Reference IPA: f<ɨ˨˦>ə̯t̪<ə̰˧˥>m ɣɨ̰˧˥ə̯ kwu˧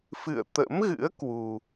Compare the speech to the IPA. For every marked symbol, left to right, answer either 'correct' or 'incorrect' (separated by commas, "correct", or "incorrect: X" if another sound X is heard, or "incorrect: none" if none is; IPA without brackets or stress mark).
incorrect: ɨ̰˧˨, correct